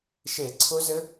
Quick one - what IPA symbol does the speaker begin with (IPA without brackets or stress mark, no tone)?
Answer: ʃ